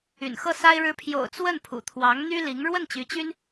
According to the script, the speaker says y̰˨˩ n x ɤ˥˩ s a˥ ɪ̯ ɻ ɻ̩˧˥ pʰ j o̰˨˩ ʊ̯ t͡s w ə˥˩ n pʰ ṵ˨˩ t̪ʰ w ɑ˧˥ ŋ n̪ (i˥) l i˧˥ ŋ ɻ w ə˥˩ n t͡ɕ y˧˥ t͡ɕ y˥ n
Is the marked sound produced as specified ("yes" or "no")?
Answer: no